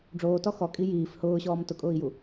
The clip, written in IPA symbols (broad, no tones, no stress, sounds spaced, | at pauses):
ɖ͡ʐ oː t ɔ x ɔ kʼ i j iː f h ʊː ɕ ɔː m t ʊ kʼ ʊː i̯ j u